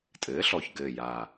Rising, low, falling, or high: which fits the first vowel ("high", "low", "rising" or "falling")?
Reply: rising